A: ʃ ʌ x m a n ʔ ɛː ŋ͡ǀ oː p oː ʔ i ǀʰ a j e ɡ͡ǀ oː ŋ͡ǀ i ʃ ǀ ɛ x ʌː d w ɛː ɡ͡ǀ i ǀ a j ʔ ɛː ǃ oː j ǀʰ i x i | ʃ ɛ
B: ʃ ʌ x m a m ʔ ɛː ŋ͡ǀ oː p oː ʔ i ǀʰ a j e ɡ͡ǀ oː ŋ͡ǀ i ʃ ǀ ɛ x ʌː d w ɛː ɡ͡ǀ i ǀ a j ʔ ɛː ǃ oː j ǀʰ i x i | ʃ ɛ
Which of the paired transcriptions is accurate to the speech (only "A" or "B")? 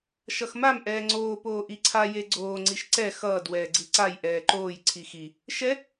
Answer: B